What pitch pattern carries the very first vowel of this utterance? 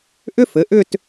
high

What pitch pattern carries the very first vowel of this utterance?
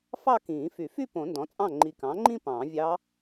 falling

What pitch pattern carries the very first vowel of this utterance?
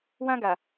high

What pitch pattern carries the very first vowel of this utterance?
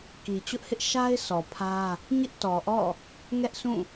low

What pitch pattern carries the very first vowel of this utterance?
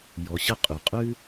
low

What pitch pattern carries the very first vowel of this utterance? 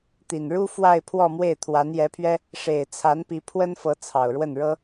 low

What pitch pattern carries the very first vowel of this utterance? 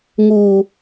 high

